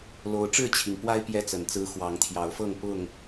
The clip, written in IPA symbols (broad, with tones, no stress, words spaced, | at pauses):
lo˨˦ʊ̯ ʈ͡ʂɻ̩˥˨t͡ɕʰi˩ŋpwa˦ɪ̯ pjɛ˦t͡sə˨˩nt͡sɹ̩˦ xwɑ˨˦ŋt̪ʰjɑ˨˦ʊ̯fɤ˥˨ŋ pʊ˥˨ŋ